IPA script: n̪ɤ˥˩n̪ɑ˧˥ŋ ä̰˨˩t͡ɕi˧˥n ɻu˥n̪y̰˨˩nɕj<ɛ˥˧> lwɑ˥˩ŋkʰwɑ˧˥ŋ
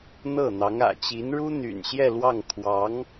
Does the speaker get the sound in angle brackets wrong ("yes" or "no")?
no